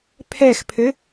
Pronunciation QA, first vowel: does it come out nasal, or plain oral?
oral